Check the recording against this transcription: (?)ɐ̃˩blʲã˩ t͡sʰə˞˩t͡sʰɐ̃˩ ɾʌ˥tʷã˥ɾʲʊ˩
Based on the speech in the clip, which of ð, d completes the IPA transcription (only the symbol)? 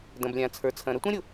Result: d